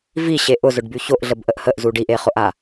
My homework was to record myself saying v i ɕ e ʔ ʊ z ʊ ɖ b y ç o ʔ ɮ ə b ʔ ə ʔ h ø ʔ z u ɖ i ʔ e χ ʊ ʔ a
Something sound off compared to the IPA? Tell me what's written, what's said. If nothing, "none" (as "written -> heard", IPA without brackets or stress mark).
ø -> ə